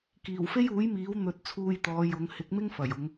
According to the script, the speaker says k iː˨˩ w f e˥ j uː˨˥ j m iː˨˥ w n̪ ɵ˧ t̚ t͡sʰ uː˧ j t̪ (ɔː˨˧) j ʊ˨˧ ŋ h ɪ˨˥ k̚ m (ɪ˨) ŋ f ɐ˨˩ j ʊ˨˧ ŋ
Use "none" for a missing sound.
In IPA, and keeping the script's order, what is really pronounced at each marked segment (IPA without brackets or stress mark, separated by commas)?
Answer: ɔː˨˧, ɪ˥